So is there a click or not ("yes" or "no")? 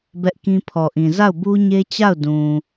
no